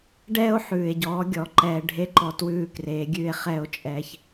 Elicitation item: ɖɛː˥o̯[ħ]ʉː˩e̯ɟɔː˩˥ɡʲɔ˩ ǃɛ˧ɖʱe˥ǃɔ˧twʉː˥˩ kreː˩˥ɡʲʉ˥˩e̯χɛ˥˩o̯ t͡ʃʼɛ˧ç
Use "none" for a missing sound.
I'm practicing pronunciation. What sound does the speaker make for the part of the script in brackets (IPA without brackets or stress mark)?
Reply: ħ